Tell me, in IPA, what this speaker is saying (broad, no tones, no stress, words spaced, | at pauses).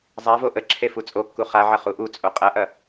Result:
zˤavo ʔə ǁʰefut͡sʼokːu χaʕɐ χuʔut͡sʼo qʼɐʔɐ